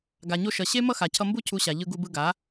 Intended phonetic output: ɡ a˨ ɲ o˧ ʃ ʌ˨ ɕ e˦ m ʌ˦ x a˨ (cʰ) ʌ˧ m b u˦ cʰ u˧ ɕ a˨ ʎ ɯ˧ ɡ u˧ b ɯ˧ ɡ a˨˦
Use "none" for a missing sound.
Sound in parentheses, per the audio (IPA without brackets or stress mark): cʰ